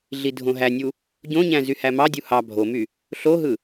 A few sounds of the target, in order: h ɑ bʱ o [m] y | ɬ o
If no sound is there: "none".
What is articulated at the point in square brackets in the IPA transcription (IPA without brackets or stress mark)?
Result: m